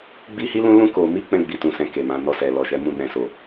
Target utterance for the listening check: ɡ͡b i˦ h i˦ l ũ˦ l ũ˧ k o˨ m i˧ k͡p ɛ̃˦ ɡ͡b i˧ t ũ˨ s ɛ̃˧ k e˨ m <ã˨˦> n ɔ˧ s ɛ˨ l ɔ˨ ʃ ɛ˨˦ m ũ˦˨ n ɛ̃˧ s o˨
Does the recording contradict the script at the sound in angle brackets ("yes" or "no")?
no